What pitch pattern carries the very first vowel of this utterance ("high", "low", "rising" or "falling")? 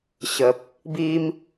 low